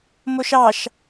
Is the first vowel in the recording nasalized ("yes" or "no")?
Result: no